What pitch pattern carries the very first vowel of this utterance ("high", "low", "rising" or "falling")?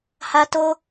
high